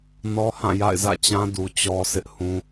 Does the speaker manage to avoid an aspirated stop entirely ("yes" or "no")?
yes